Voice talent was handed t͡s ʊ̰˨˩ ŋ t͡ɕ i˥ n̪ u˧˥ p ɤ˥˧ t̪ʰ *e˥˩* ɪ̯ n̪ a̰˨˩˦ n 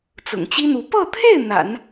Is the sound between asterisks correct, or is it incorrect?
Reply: correct